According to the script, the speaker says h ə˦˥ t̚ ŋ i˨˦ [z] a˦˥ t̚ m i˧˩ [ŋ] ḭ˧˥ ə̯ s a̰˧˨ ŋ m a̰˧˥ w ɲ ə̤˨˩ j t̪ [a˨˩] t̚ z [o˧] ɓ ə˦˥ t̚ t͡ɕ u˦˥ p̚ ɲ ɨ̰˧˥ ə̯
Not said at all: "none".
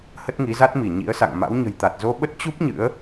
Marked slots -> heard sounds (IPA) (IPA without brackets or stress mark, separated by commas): z, ɲ, a˨˩, o˧